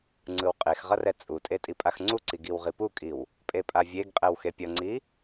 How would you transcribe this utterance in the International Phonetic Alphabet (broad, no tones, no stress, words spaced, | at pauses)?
ŋ͡ǀɯwqʼexʁʌ rɛt͡sʼutʼe tʼipʼaxŋ͡ǀuǀi ɡiwʁipukʼiw | pʼepʼavʲeɡqʼɛw xepʲʌŋ͡ǀi